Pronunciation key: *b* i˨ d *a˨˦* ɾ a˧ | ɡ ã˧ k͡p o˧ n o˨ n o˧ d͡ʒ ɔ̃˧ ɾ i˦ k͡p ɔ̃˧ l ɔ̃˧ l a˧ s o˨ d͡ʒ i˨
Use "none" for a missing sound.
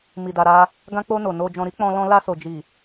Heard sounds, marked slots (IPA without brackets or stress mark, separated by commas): m, a˨